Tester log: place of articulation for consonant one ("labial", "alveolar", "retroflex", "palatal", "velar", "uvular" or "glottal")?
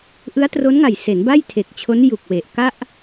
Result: glottal